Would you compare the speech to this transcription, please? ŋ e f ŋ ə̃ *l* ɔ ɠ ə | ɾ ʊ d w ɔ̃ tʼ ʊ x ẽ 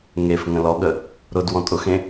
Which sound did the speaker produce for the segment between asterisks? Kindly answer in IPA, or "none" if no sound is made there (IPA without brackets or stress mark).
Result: l